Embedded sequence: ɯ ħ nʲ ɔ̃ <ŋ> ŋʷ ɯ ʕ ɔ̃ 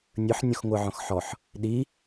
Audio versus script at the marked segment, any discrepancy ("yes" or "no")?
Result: yes